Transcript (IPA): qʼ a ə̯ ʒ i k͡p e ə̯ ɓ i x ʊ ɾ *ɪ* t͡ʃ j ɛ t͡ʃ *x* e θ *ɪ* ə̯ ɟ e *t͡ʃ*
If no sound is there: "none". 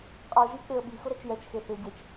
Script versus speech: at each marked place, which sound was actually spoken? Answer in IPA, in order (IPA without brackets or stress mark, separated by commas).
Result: ɛ, x, ɪ, t͡ʃ